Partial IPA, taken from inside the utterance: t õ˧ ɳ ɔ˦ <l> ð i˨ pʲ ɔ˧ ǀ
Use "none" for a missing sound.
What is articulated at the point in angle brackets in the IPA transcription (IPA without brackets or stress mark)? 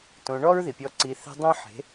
ɹ